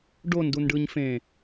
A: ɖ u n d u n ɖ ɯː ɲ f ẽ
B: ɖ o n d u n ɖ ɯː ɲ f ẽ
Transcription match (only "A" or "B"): B